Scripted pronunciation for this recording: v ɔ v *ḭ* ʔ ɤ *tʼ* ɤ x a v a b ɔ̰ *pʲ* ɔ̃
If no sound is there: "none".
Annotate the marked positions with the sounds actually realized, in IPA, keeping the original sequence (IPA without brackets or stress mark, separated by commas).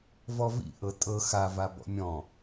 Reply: ḭ, tʼ, mʲ